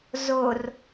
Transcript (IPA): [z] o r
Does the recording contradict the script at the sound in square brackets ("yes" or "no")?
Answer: no